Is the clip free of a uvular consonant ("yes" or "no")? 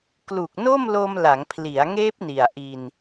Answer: yes